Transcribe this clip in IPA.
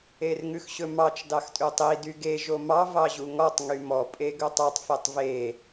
e r ŋ ʉ x ɕ ɵ m ɑ t͡ʃ d ɑ x tʼ ʉ tˤ i d y ɡ e ʒ o m ɑ v ɑ ʑ u ŋ ɔ tˤ ŋ y m ɔ pʼ e ɡ ɵ tˤ ø tˤ f e tˤ v e

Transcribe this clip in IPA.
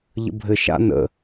ʎ ə̰ bʱ ɘ ʃ a̰ n ə̰

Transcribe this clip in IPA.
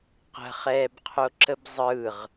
q ə̤ χ ɛː b qʰ o ǁ ə b zˤ ɯ ʁ

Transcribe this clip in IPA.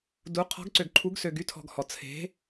d u˩˧ qʰ ɔ̤˩˧ ɡ ǀ ø˩ ɡ ǃʰ u˩˧ ɡ s ø˩ ɡ y˩˧ tʰ ɔ̤˩ ɡ h ɔ˩ t͡sʰ e̤˩˧

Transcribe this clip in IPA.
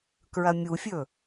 k ɹ ɐ mʲ u fʲ ɵ

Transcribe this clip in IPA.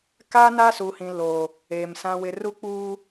k a˦ n a˦ s uː˨ h ĩ˨ l o˨ | eː˨ m s ã˦ w ɪ˦ r u˦ k͡p uː˦

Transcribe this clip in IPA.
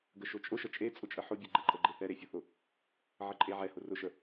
ɡ ə ʃ ʊ t͡ʃʼ ʊ ʃ ə t͡ʃʼ e t͡sʼ ʊ t͡ʃʼ ə ħ ʊ bʲ ʊ ɡ͡ǃ ɛ ǃʼ ə ɡ͡ǃ e θ ɛ ɾ e fʲ ʊ θ ʊ | ʕ ə ǃʼ e ʕ ɛ h ʊ r ʊ ʃ ə

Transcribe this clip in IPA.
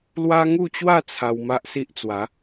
l w a˦ ŋ u˥˧ t͡ɕ w a˥˧ t͡sʰ a˧ w m a˦ ʔ s i˦ ʔ t͡s w a˨˦

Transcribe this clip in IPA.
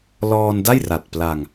l ɔː˧ n d a˥˩ j r a˨˩ t̚ p l a˧ ŋ

